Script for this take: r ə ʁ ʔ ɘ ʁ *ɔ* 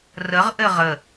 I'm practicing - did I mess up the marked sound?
yes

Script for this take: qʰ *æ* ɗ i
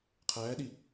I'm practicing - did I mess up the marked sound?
yes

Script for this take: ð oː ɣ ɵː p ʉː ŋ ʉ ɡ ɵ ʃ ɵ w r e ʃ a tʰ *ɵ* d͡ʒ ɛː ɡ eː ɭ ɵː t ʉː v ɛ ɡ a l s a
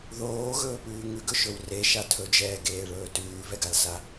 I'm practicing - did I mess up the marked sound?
no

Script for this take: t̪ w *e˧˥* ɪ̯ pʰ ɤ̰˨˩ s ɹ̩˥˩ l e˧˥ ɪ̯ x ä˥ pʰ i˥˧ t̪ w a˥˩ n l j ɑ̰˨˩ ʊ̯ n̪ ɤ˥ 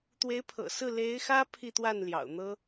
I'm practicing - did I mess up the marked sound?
no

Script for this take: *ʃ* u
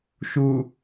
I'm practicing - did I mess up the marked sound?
no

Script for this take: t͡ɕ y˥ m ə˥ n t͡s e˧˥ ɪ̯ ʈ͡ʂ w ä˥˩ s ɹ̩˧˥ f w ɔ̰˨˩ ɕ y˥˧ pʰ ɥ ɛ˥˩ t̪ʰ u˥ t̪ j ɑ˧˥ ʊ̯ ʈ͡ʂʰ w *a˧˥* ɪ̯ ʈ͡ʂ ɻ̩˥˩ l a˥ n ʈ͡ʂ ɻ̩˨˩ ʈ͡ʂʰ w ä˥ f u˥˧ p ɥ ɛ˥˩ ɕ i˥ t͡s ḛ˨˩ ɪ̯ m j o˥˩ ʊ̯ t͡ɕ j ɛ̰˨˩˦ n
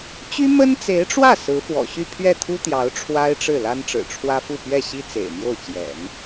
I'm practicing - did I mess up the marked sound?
yes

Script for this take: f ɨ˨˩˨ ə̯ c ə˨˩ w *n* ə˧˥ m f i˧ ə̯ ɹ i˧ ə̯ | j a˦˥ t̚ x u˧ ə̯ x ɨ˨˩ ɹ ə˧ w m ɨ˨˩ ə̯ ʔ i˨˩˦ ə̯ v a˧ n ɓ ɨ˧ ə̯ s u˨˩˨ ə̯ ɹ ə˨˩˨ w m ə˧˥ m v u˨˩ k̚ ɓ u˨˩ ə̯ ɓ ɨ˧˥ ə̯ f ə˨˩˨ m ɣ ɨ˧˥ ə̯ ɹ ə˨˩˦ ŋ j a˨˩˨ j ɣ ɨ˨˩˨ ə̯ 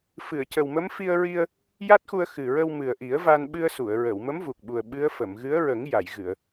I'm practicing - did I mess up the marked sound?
yes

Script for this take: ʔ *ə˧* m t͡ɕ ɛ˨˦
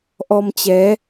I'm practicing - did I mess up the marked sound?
yes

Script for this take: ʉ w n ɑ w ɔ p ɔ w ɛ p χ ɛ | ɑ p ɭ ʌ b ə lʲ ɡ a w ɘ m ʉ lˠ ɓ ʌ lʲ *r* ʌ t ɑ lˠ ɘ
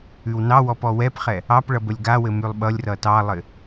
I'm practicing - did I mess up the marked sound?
no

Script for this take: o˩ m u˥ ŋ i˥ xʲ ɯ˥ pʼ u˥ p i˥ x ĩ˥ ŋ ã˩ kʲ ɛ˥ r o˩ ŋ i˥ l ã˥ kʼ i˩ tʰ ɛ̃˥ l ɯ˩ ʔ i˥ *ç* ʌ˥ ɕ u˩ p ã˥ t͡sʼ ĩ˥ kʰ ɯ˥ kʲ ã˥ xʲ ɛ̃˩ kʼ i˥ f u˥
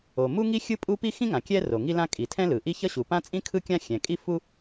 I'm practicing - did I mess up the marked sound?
no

